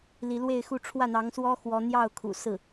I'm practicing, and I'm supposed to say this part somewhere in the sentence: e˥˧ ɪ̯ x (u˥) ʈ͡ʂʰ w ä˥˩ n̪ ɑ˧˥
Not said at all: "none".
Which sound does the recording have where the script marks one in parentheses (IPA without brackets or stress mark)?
u˥˧